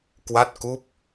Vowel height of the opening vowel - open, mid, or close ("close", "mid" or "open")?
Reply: open